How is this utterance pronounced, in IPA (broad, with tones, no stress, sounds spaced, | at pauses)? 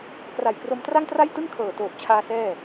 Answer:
k r a˨˩ j k r o˧ m t r a˥˩ ŋ t r a˥˩ j t ɯ˥˩ ŋ kʰ ɤː˨˩ t oː˨˩ p̚ t͡ɕʰ aː˧ s ɛː˥˩